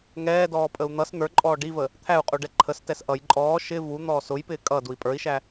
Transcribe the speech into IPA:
ŋ ɛː d ɔː pʼ ə u̯ n̪ ʌ s n̪ ə˞ ǃʼ ɔː ɖ i v ə | t̪ʰ æ u̯ qʼ u ɖ ɛ ǃʰ ə s t ɛ s ʔ ʌ j ǃʼ ɔː ʃ ɪ v u n̪ ɔː s ʊ j p ɪː kʼ ʌ d u i̯ pʼ ə˞ i̯ ʃ æ

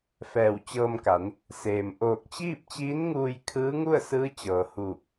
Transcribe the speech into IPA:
f ɛː˧˩ w t͡ɕ ɤː˧ m k a˩˧ n | s eː˩ m ʔ oː˧˩ k̚ t͡ɕ iː˥˨ p̚ t͡ɕ iː˧˥ n ŋ uː˧ j kʰ ɯː˧˥ ŋ u˥˨ ə̯ s ɯː˧˥ t͡ɕ ɤː˩ h uː˧˩ p̚

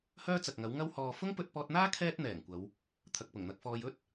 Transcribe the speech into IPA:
h œː˥ t͡s ɐ˨ k̚ ŋ ɐ˨˥ w ŋ ɐ˥ w h ɔː˨ f ʊ˥ ŋ p ɵ˧ t̚ p ɔː˧ t̚ n̪ aː˥ kʰ ɛː˥ t̚ n̪ ɛː˨˩ ŋ kʷ ɐ˨˧ w | t̪ʰ ɐ˨ k̚ p ʊ˨˩ ŋ n̪ ɐ˧ k̚ f ɔː˧ j ɵ˥ t̚

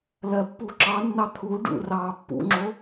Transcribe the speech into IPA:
l ɜ pː u ǁ ɑ nː ɑ t̪ʰ u ɖ ṵ r ɑː pː ṵ ŋ͡ǁ o

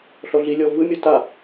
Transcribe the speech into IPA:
ɬ ɔ ɮ i lʲ ɔ v ɯ mʲ ɔ t a

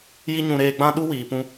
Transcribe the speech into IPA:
j i˦ ɲ ũ˧ ɾ eː˧ ɡ͡b ã˦ ɗ u˦ w iː˨ p ũ˧

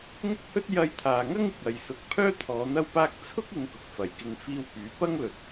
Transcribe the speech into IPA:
ŋ ʊ˥ k̚ h ɵ˥ t̚ j ɐ˧ j t̪ʰ aː˨ ŋ ɐ˥ ŋ ɪ˨ k̚ ɐ˨ j s ʊ˨˥ k̚ pʰ œː˥ t̪ʰ ɔː˨˧ n̪ ɐ˧ w p aː˧ k̚ t͡sʰ ʊ˥ k̚ ɪ˨˧ ŋ k ʊ˨ k̚ f ɐ˨˩ j k ɪ˧ ŋ f iː˧ w p yː˨˧ p ɐ˥ ŋ l ɵ˨ t̚

